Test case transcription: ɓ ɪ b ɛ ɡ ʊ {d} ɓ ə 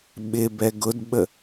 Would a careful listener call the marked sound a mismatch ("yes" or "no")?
no